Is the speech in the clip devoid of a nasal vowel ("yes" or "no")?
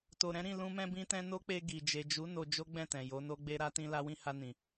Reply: no